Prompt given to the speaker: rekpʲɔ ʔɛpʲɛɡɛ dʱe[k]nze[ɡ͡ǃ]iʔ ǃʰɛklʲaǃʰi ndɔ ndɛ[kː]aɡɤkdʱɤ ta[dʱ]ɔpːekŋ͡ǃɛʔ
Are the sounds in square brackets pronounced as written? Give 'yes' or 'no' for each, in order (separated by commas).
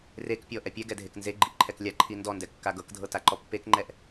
yes, yes, yes, no